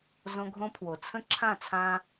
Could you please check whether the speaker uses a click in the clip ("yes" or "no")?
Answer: yes